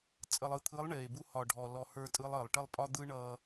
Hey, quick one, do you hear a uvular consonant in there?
no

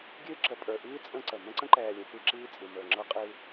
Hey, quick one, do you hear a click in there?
yes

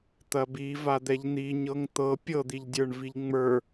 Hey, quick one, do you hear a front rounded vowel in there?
no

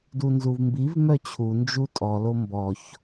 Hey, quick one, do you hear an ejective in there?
yes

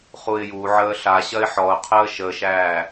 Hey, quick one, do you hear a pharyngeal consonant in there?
yes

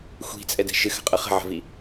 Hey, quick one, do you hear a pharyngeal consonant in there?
yes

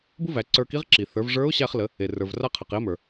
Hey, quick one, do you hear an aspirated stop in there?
yes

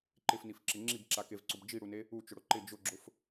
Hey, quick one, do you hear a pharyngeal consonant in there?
no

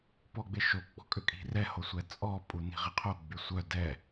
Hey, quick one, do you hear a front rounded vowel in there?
yes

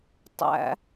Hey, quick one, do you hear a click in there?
no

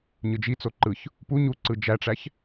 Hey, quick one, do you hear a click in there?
yes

